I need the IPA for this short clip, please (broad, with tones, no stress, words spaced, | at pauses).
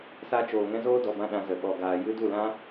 sa˦ t͡ʃoː˨ŋɛ̃˦zoː˦ dɔ˨bã˧ɗã˨ zə˨ ɓɔ˨ɡaː˨ jɨ˦ du˦˨lã˦